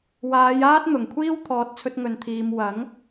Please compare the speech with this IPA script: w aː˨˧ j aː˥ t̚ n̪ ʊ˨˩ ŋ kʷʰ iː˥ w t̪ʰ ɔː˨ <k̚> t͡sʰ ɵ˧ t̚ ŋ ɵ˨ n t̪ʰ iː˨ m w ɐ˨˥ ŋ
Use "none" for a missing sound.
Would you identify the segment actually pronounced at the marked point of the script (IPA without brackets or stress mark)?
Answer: t̚